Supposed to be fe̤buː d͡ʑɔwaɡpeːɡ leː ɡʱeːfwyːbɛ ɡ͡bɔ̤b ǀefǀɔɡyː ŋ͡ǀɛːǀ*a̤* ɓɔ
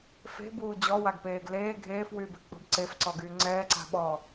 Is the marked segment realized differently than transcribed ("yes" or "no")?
no